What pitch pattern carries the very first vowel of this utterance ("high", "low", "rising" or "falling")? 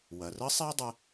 low